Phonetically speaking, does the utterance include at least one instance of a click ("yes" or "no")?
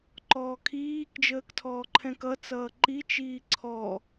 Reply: yes